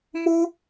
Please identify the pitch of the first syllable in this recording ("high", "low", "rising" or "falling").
high